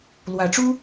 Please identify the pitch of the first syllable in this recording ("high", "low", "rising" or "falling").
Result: rising